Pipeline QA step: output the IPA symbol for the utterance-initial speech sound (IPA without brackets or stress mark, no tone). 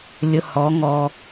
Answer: lʲ